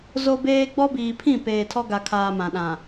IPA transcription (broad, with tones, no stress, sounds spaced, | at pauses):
z o˦ b eː˦ ɡ͡b ɔ˦ b iː˨ pʰ ĩ˦˨ p eː˨ tʰ ɔ˦ ɡ a˨ kʰ aː˨ m ã˨ ɗ ã˨